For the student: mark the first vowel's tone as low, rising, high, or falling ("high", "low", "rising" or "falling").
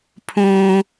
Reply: high